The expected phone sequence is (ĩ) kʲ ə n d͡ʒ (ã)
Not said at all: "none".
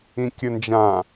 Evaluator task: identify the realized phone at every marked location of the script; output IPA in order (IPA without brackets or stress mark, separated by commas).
ĩ, ã